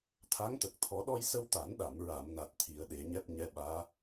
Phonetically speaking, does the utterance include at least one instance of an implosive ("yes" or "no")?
yes